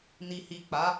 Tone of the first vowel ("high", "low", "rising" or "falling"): low